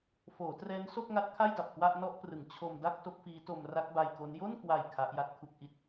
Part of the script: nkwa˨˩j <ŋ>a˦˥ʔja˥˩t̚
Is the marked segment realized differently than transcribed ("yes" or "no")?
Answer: yes